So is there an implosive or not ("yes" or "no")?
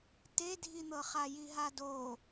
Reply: no